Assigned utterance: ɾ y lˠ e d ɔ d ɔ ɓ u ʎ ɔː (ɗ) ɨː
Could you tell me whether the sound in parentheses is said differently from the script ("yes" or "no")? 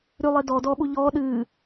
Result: no